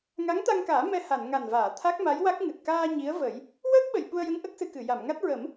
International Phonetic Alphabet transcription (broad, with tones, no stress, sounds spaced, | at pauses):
ŋ a˧˥ ŋ t̪ a˧ ŋ k aː˨˩˦ m ɛ˧ h a˨˩˨ n ŋ a˨˩ n v aː˨˩˨ t̪ʰ a˦˥ k̚ m a˧˥ j w a˦˥ k̚ ŋ ɨ˨˩ t̚ k aː˧ ɲ i˧˥ ə̯ v ə˨˩˦ j | w əː˦˥ k̚ ɓ ə˨˩ j ɓ u˧ ə̯ j ə˧˥ ŋ ʔ ə˦˥ k̚ s ɨ˧ k ɨ˨˩˨ j a˨˩˨ m ŋ a˦˥ t̚ ɹ ə˨˩˦ m